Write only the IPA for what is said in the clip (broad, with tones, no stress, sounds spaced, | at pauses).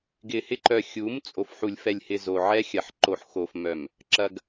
ɡ ɪ˨ h ɪ˦ ǃ œ˨ xʲ u˨˦ m t͡sʼ o˨ f ħ u˨ lʲ f ɛ˨ lʲ h ɪ˨ z o˨ ʕ ɛ˦ xʲ ɐ˨ ħ ǃ o˨ ħ x o˨ f m œ˨ m | ǁ ɐ˨ ɡ